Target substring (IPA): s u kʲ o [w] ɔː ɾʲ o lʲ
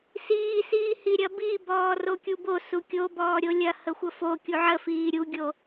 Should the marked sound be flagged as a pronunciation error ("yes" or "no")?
yes